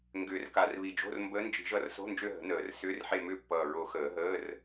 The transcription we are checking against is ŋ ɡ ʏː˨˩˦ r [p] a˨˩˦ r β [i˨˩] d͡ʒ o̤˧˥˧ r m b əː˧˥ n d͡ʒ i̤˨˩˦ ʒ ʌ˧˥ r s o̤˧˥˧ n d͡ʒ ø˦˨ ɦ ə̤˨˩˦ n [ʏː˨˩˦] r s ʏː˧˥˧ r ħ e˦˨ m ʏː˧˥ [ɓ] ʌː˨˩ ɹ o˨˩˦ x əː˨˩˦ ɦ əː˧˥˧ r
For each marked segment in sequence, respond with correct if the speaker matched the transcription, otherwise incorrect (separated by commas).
incorrect, correct, incorrect, incorrect